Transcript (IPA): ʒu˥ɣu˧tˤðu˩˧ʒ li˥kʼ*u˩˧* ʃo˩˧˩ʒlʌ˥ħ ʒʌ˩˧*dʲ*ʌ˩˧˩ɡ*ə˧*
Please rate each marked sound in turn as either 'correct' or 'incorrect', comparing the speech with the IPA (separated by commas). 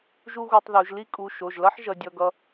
incorrect, correct, incorrect